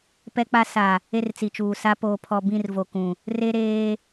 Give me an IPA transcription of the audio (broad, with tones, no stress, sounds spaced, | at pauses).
p ɛ˦ k͡p a˦ s a˨ | e˦ r t͡s i˨ t͡ʃ uː˨ s a˦ p oː˨ pʰ ɔ˨ b ĩ˦˨ r v o˨ k ũ˨ | r e˦ ɾ eː˦